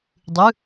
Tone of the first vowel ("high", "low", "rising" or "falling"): rising